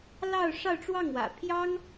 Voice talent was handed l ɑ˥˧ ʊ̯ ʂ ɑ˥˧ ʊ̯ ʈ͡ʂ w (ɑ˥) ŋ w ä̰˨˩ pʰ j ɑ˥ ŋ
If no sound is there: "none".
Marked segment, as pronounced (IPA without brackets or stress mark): ɑ˥˩